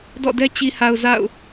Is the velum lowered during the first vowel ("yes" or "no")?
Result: no